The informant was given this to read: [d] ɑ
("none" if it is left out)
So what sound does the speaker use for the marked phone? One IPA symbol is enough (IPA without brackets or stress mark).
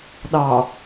ɗ